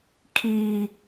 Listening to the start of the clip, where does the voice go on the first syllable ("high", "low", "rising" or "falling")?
high